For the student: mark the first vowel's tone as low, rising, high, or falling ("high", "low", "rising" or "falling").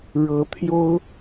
rising